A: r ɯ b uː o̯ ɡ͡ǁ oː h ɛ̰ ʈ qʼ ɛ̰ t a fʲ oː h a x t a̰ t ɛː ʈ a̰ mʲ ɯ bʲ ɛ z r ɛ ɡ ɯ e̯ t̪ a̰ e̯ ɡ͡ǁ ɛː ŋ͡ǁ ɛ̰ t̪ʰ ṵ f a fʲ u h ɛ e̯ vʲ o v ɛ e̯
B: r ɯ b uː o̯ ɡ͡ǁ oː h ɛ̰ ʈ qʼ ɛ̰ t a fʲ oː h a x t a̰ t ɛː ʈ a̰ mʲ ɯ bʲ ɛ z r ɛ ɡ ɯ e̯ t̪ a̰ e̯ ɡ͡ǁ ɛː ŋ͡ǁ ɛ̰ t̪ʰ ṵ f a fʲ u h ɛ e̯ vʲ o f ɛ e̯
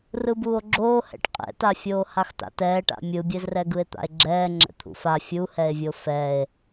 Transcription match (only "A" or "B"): B